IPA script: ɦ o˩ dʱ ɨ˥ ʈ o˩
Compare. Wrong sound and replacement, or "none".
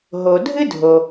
ʈ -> dʱ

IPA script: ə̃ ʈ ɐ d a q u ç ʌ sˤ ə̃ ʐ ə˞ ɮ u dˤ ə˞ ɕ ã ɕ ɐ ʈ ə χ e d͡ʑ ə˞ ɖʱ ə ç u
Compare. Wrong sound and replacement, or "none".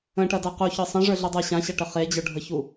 ʌ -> ə˞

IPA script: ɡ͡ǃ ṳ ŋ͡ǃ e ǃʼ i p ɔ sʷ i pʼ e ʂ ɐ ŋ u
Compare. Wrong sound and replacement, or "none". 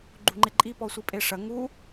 none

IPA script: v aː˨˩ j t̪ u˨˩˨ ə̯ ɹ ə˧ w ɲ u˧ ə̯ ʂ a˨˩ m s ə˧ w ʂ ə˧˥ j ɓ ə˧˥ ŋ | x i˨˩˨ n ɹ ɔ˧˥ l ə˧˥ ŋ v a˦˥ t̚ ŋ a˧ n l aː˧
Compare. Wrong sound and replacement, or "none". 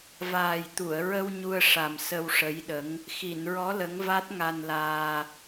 ɓ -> ɗ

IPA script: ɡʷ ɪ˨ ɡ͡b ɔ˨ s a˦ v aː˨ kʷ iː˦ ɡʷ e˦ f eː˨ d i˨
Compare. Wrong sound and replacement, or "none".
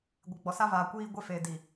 none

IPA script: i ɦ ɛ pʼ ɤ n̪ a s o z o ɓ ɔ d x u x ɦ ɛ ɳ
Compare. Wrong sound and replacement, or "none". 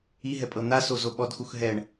none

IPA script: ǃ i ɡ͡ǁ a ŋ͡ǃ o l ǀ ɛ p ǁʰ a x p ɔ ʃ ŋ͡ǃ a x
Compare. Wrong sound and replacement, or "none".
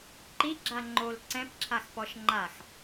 ɛ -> ɛ̃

